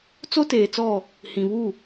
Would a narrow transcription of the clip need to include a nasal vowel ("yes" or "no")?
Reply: yes